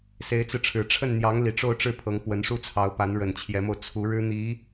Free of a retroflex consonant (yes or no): no